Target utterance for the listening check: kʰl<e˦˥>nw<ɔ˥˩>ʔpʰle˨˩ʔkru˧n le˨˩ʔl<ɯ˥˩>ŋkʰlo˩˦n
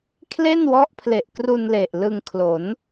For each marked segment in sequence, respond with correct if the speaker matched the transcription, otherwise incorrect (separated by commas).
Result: incorrect, incorrect, incorrect